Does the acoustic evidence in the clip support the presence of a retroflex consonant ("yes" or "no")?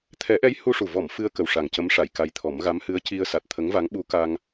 yes